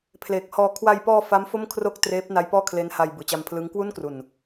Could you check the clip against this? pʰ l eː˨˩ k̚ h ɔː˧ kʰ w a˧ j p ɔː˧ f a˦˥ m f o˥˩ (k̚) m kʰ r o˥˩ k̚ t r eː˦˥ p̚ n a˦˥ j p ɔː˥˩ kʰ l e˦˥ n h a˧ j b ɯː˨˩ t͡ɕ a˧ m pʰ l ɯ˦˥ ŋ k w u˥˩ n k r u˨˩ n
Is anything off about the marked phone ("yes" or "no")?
yes